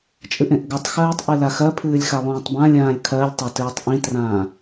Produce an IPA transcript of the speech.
t͡ʃʼɨʔẽʔɡɜtˤxɜːtˤ ʔɨlaxɜpʰɨːlʲ xalˠũːtˤbãlʲãːlʲ kʰɜlʲtˤa tɨːtˤʔĩtrãː

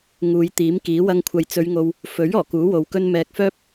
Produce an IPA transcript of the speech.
ŋuː˨˧jt̪iː˨˥mkiː˨˥ wɐ˧ŋkʷʰɐ˨jt͡sɵ˨˧ɥŋo˨w | fɵ˨˥ɥ ɔː˨˩kuː˨˥wo˨wkɵ˥n mɛː˨k̚fœː˥p̚

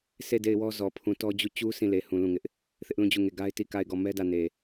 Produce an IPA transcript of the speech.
sʰe˦˨ de˦˨ɪ̯wɔ˦ zɔ˨ pʰũ˨tɔ˦d͡ʑu˦˨ t͡ɕu˦ sʰĩ˦˨le˨ hũ˨ lũ˦˨ŋɪ˦ʔ | θɪ˦ʔlũ˦˨ d͡ʑu˦˨ŋe˦˨ ɡa˦ɪ̯ti˦˨ka˦˨ɪ̯ɡɔ˦˨ mɛ˦dä˦˨ne˨

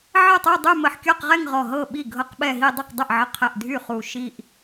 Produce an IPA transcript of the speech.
ʕə˥˩tˤy˥˧dˤy˥˧ mə˧˩ħkʲɔ˥˧qʁɛ˥˧ŋ ʁɔ˧˩ɦɤ˥˩ ɓi˥˩ɡʱɤ˥˧qɓɛ˥˧ɦi˥˧ dˤu˥˩qdˤɛ˥˩ʔʕə˧˩qʰɛ˧˩ʔ dʱy˥˩χu˧˩ ʃi˥˧ʔ

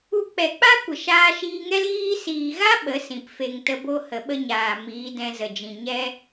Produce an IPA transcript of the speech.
u˧ k͡pɛ˨k͡pa˦ kʷə˨ʃaː˧ʃiː˧ŋɛ˦l ɣiː˦ siː˨ɣa˦ ɓə˨˦sĩ˨p fe˨ŋtə˧bo˧ hə˨ɓə˦ɲaː˨ miː˨˦dɛ̃˧zə˨d͡ʒĩ˨ ɲɛ˦

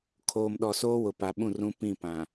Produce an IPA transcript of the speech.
kʰoː˨mɗɔ˨soː˦wʊ˨ pa˨ɓũ˦˨rũ˦ pĩ˦˨pã˨

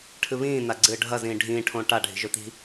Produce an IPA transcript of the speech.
ʈʰɨβĩː naɡ͡ǀɨːɖʱɐ zĩːɖʱĩː ʈʰõːʈa ɖʱi̤ʒɵt̪i̤

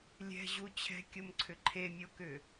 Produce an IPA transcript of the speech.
lʲɛ̤ʑu t͡ɕʰɛ̤kʲomǀʰʏ ǃʰemʲokʏ

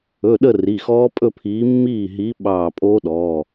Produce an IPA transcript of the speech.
ɵ˩˧˩ ɗə˥˧ri˩˧˩ xɔː˦˥pʼɵ˥˧pʰiː˨˥ mːiː˥˩ɦi˨˥ ɓɑː˧˩pʼo˦˥ɗɔː˩˧˩

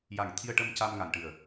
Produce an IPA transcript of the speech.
ja˨˩ŋ t̪ʰi˧ə̯ʈə˧m ca˧mŋa˨˩nʈɨ˨˩ə̯

